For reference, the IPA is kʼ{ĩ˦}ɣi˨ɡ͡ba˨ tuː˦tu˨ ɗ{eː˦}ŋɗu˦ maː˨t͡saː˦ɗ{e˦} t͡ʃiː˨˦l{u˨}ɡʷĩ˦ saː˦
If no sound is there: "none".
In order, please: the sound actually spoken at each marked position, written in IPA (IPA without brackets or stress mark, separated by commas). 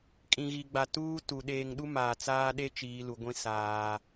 ĩ˨, eː˨, e˦, u˨